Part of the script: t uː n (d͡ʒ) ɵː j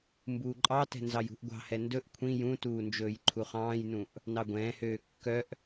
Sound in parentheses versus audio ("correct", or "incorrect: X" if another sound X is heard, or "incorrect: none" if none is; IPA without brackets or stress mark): correct